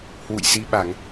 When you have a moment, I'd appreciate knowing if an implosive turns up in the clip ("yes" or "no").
yes